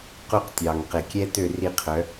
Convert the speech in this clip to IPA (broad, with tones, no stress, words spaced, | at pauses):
qu˦qtʲɑ˨ŋ qe˨kʲɛ˦tø˦˨ ri˦˨qʰœ˨˦